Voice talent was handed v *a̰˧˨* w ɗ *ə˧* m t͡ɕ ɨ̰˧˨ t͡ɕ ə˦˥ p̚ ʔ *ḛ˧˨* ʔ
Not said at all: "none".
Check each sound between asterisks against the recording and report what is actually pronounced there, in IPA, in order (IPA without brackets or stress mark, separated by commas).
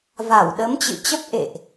a˧˩, ə˨˦, ḛ˧˨